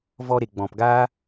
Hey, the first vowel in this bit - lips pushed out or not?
yes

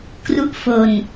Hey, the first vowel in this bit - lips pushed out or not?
yes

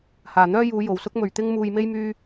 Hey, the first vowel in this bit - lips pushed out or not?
no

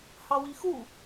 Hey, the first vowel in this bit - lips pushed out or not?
no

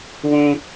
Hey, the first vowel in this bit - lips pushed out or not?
yes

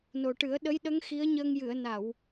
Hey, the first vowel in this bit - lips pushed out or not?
yes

